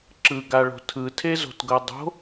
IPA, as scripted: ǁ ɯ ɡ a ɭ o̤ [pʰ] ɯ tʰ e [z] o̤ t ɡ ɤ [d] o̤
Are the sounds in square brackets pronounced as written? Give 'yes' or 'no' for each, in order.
no, yes, no

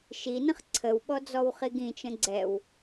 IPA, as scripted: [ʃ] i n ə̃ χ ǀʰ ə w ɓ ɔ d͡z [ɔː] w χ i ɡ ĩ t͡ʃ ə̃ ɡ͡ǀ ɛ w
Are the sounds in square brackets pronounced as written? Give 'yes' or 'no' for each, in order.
yes, no

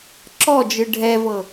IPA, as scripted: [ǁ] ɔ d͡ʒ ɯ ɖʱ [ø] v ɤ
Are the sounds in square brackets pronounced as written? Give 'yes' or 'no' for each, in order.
yes, no

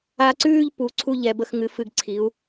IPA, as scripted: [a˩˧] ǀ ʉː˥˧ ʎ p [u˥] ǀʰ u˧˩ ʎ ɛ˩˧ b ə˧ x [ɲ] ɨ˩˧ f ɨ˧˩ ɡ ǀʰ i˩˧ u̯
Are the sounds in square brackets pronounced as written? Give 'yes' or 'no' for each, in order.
no, no, no

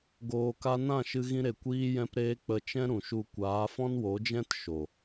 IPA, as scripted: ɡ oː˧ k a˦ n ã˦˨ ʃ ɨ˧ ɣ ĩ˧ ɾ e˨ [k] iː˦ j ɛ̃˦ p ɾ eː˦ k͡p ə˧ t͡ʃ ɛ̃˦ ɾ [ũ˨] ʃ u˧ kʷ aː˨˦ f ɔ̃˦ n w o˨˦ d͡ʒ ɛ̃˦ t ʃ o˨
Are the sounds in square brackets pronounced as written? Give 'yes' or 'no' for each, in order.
no, yes

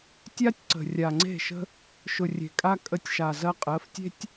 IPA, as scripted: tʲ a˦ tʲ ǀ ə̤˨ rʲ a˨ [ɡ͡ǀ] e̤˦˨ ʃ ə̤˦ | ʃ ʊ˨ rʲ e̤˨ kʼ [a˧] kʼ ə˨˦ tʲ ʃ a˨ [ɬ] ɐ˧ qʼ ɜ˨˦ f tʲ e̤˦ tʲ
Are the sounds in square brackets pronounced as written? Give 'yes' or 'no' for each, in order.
no, yes, no

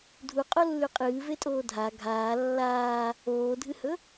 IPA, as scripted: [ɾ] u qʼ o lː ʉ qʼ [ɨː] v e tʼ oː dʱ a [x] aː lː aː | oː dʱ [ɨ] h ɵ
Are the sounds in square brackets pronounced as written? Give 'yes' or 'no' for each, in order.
no, yes, no, yes

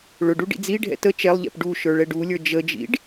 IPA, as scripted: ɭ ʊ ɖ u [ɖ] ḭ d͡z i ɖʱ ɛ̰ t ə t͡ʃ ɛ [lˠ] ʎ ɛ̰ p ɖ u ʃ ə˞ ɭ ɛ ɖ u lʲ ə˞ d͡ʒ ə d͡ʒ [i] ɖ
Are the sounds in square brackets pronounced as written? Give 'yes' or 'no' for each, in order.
yes, yes, no

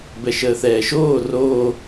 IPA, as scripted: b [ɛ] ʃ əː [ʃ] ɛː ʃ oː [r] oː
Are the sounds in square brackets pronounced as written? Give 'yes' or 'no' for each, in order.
yes, no, yes

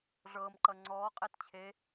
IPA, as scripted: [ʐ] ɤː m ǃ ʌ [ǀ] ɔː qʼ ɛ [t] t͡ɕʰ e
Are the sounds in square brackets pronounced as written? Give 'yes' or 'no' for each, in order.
yes, no, yes

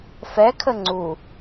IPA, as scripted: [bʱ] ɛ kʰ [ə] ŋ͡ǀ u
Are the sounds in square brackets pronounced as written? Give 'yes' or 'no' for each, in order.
no, yes

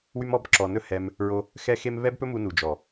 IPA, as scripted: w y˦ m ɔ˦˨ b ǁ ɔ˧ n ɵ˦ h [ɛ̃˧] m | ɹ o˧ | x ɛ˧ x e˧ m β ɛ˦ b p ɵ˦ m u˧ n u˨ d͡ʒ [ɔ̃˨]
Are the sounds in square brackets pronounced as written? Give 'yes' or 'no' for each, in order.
no, no

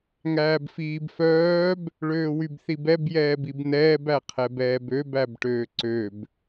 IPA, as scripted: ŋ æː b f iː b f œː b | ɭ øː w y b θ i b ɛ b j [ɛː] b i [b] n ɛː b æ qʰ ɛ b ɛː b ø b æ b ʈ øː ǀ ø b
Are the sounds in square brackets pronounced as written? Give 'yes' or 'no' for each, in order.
yes, yes

